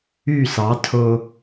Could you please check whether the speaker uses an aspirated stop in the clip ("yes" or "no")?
yes